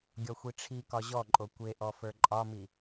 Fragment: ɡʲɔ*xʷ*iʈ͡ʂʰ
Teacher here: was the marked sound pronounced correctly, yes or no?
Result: yes